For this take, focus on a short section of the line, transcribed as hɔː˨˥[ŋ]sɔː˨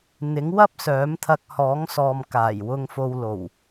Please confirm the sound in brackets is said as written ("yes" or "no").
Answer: yes